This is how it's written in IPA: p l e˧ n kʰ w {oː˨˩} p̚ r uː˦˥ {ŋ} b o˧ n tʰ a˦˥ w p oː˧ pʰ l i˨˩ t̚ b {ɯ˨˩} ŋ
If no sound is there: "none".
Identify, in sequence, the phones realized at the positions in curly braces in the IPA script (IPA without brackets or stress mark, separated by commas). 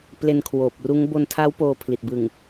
oː˨˩, ŋ, ɯ˨˩